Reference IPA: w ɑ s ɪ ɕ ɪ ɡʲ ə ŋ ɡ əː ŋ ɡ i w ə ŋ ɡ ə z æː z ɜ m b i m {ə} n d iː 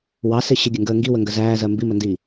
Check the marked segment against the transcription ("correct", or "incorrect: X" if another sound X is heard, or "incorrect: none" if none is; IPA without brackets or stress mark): correct